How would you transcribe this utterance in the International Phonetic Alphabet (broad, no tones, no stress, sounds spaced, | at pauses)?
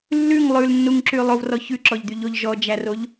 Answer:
lː ʉ ŋ lˠ ʉ l nː u ŋ ǁ y lˠ o v r ɔ ç ʉ ǁ ɔ ʎ d̪ y ʎ o ʎ ʒ ɔ d͡ʒ æ r o ʎ